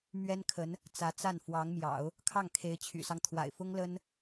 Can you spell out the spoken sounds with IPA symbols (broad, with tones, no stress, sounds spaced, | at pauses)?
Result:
m ɥ ɛ˥ n kʰ ə˧˥ n | t͡s ä˧˥ t͡s a˥˩ n f w ɑ˧˥ ŋ m j ɑ̰˨˩˦ ʊ̯ | kʰ ɑ˥˩ ŋ kʰ e˧˥ ɪ̯ t͡ɕʰ y̰˨˩ s ɑ˦ ŋ t̪ʰ w a̰˨˩ ɪ̯ f ʊ˥ ŋ l ə˥ n